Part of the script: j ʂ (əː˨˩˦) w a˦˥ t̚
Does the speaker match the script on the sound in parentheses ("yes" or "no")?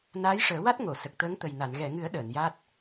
yes